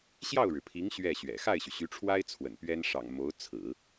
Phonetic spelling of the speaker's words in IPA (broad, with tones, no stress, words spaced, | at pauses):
ɕjɑ˥˩ʊ̯ɻɻ̩˩pʰi˧˥ŋ ɕɥɛ˥˩ɕɥɛ̰˨˩ xa˥˩ɪ̯ɕy˩ɕy˧˥ʈ͡ʂʰwa˥ɪ̯ t͡sʰwə̰˨˩npɥɛ˥n ʂɑ̰˨˩ŋ mo˧˥ʊ̯t͡sʰɹ̩˨˩˦